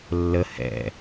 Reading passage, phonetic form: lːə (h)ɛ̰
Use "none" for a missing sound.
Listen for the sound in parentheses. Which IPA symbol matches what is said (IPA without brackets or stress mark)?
h